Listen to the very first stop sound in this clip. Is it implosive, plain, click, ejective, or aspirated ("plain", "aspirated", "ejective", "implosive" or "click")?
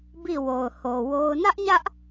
plain